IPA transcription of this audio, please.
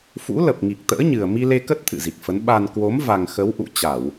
fṵ˧˥lə˨˩p̚ ŋi˨˩k̚t̪ə̰ː˧˥ɲɨ˨˩ə̯ mi˧le˧kə˦˥t̚ t̪ʰɨ̰˧˨zi˨˩k̚fə˨˦n ɓa˨˩n kwo˨˦m va˨˩ŋ xə˨˦wʔṵ˧˨t͡ɕa˧˩˨w

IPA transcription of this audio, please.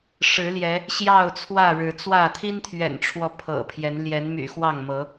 ʂɻ̩˨˦ ljɛ˨˦ | ɕjɑ˥˨ʊ̯t͡sʰwä˥˨ ɻɻ̩˨˦ t͡swä˥˨ t̪ʰi˦nt̪ʰɥɛ̰˨˩nʈ͡ʂʰwɔ˨˦ pʰɤ̰˨˩pʰjɛ˨˦n ljɛ˨˦nmy̰˨˩ xwɑ˥˨ŋmɤ˨˦

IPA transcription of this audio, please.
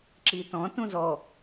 ǁitɔ̃ tũzɔ

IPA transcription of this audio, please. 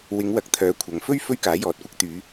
wɪ˨˧ŋwɐ˨k̚ t̪ʰœː˨˥kʷʰɐ˨ŋfɵ˥ɥ fɵ˥ɥkaː˨˥jɔː˨t̚kʷɐ˥k̚ t̪yː˨˧

